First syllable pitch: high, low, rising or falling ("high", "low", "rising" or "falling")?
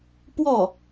falling